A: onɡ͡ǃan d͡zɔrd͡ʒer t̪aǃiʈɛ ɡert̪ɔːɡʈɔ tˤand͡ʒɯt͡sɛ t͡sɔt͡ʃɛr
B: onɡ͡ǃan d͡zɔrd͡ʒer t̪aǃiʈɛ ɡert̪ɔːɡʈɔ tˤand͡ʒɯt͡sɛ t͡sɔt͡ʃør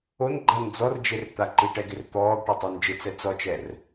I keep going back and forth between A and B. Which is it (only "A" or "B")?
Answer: A